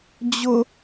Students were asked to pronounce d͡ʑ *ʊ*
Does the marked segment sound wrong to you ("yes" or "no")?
no